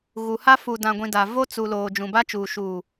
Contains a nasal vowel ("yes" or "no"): yes